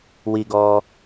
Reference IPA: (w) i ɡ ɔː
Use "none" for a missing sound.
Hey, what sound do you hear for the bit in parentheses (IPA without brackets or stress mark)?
w